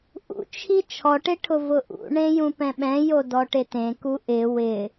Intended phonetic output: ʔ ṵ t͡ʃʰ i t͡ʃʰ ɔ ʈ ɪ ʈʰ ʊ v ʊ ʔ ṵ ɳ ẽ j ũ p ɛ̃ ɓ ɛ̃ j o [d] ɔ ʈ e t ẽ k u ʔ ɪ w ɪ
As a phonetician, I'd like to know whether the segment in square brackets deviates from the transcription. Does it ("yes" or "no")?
no